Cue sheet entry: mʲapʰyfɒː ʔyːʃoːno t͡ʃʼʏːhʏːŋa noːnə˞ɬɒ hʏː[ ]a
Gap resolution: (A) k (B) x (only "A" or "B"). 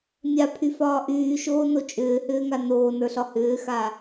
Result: B